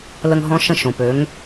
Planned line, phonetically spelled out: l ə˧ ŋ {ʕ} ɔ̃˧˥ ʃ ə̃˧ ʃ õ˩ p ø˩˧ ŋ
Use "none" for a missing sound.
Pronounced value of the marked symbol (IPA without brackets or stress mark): ɦ